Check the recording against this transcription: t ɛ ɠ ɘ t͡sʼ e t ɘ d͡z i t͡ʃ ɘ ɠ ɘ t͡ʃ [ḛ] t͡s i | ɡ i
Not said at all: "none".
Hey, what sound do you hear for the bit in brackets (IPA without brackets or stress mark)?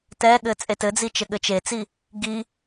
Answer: e